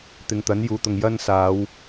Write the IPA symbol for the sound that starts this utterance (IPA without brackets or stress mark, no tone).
t̪